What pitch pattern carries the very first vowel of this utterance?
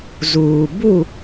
low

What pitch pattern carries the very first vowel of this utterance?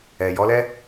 low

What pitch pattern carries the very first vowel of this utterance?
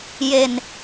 low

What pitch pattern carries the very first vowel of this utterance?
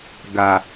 low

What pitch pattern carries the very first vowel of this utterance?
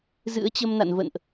rising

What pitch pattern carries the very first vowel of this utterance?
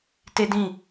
high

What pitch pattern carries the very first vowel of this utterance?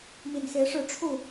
low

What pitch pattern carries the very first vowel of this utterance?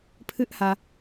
high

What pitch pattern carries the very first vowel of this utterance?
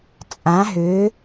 rising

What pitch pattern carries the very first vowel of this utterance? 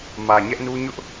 low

